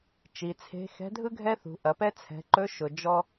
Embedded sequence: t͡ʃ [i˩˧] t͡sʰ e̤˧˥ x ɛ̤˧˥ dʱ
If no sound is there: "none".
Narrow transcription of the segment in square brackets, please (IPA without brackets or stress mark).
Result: i˩˧